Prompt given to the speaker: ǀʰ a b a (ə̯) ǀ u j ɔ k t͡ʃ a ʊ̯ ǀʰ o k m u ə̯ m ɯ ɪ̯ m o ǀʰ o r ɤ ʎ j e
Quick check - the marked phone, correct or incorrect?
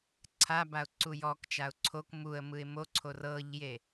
incorrect